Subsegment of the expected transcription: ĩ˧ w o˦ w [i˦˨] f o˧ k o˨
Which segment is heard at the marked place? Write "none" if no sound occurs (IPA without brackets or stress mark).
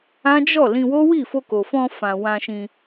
i˦˨